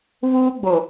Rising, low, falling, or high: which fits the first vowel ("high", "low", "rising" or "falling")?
high